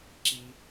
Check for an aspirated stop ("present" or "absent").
absent